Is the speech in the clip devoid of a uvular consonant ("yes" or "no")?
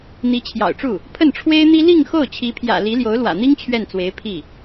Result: yes